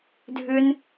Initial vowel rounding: rounded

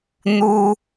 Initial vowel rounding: rounded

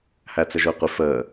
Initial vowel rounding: unrounded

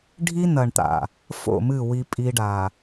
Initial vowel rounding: unrounded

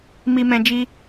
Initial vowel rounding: unrounded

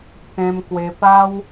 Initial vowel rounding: unrounded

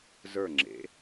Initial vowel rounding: unrounded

